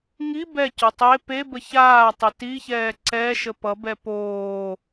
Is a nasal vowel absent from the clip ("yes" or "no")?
yes